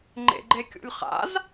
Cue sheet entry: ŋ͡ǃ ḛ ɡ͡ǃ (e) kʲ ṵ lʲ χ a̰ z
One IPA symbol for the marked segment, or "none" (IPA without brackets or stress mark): e